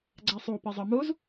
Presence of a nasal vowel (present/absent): absent